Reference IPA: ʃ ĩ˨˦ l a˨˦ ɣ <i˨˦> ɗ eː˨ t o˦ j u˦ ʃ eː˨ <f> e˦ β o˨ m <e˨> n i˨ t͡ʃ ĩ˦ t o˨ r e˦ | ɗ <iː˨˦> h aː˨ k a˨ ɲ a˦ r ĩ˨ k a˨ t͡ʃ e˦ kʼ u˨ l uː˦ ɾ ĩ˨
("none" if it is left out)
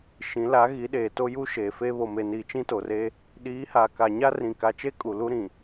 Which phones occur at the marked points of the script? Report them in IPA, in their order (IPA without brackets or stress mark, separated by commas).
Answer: i˨˦, f, e˨, iː˨˦